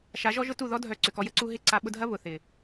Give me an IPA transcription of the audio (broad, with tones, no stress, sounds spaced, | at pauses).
ʃ a˨˦ ʒ ɔ˦ ʒ ʊ˦ t u˦˨ ð ɔ˦ dʱ œ˨ ǀ ʏ˨ k ɔ˧ j ə˦ ǀ u˦ ɦ ɪ˦˨ ǀ a˧ ɓ ʊ˧ dʱ ɐ˦ β ʊ˨ θ ɪ˨